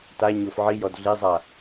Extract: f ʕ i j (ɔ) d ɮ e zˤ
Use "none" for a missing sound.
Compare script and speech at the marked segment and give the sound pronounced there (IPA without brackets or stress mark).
ɔ